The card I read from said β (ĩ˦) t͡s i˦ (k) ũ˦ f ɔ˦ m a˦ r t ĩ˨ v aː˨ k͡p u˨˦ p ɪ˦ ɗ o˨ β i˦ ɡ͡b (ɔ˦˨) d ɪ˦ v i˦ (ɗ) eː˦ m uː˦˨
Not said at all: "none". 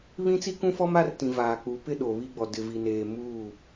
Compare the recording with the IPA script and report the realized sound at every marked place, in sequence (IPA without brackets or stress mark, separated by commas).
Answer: ĩ˦, k, ɔ˨, n